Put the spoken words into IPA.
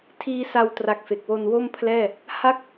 tʰiː˦˥sa˧wtra˨˩k̚ fe˨˩k̚wo˧n wo˥˩mpʰlɛː˥˩ | ha˥˩k̚

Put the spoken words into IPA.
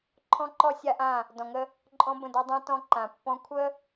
ǃʰɔ̃˦ǃɔ˦ sʲa˦ʔã˦˨ | dɔ̃˨ŋə˦ | ǃʼɔ̃˦bə̃˦˨dɔ˦ dˤã˦ tɔ̃˦ ǃã˨pːɔ̃˦ kʷʰə˦

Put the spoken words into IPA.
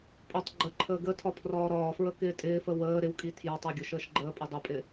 pʼʊtˤ ɡ͡ǃəǃʰəː ɡətʰɒ pʰrɒːɾɒːfɹə kɪːtʼɪːfə wəː ɾɪwkʼi tʰjɒtˤɒ ɡʲʊʃəːʃɡ͡ǃəːpʼə dˤʊpʼɪ

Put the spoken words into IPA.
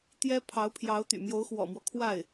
t̪jɛ˥ pʰɑ˧˥ʊ̯pʰjɑ˧˥ʊ̯ t̪y̰˨˩mjo˧˥ʊ̯xwɔ̰˨˩mwɔ˦ kʰwa˥˩ɪ̯

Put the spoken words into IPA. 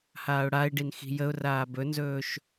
haːʊ̯ɽaɪ̯ɖin xi̤jəʊ̯raː bɵnzɵːʃ

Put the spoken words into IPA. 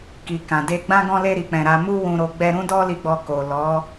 ki˨ kã˨de˧ ɡ͡bã˧ɡɔ̃˧le˧ ɾi˧k͡pɛ̃˧ɾa˦ mu˦wũ˧ɾo˧ ɡ͡bɛ˧ ɾũ˦dɔ˦li˧ɡ͡bɔ˧ ko˨ lɔ˨˦

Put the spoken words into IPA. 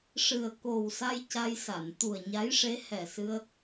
ʂɨ˨˩ə̯ ko˨˩wsa˧j ca˧jsa˨˩˨n t̪u˨˩ə̯ɲa˧˥jʂe˧˥ hɛ˨˩sɨ˧ə̯

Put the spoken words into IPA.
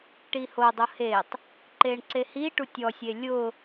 ʈiho dˤʊhetˤ | ǃeɳǀehi ʈutʲɔ sʲelʲʊ

